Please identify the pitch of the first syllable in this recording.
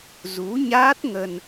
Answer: rising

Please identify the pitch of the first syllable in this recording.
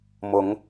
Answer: rising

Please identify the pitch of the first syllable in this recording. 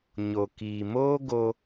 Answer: low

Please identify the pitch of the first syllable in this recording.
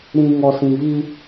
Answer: low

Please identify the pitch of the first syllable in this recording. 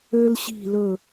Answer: high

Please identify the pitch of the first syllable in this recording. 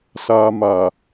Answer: low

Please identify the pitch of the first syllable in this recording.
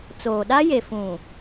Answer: low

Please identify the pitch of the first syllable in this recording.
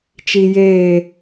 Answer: low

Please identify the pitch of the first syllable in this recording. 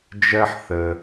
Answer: high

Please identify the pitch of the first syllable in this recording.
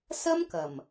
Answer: high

